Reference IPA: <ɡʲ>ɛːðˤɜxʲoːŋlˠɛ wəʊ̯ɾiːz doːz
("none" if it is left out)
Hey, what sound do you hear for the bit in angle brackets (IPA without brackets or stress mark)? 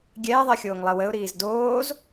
ɡʲ